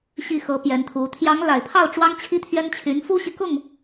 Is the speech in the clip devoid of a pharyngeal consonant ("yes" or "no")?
yes